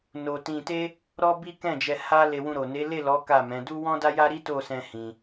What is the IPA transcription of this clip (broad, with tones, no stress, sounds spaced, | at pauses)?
n o˧ t ĩ˧ t e˦ | ɾ ɔ˦ b i˦ k ɛ̃˦˨ d͡ʒ ɛ˧ h a˦ l e˧ w ũ˧ ɾ o˨ n e˨˦ l e˦˨ l ɔ˨˦ k a˦˨ m ɛ̃˨˦ d u˦ w ɔ̃˦ d a˦ j a˦ ɾ i˦ t o˦˨ s ɛ̃˧ h ĩ˧